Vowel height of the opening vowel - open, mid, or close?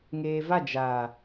mid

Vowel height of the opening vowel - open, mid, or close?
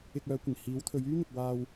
close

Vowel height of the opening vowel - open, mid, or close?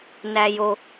open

